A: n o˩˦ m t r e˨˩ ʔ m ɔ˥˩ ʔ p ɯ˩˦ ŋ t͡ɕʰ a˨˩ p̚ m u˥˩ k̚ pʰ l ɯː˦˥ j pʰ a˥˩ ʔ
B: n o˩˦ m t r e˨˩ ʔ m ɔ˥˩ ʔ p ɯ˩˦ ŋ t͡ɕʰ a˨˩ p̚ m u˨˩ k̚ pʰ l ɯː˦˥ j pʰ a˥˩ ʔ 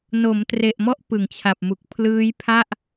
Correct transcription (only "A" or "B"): B